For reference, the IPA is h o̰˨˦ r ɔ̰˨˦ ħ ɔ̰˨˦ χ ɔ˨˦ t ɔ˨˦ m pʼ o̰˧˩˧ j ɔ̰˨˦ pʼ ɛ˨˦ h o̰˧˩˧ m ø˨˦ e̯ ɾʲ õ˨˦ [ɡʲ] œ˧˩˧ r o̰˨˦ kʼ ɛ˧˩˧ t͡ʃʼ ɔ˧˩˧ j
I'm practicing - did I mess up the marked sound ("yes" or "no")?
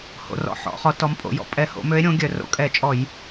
no